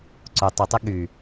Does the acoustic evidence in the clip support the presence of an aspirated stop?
no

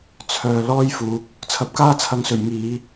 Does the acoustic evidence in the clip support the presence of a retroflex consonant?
no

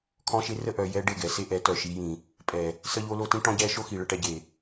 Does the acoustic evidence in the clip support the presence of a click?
no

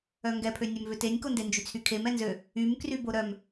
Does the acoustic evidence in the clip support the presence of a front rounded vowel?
yes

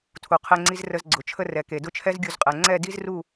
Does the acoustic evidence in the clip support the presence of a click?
yes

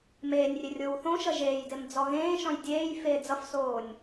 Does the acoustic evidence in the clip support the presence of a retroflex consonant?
no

